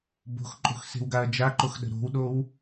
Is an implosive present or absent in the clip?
present